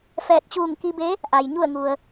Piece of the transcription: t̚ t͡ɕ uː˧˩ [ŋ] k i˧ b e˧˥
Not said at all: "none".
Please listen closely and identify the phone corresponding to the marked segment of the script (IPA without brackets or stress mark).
ŋ